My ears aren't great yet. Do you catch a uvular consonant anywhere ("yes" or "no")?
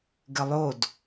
no